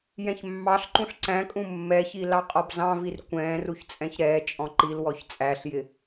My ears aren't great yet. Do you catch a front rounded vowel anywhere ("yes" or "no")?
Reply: no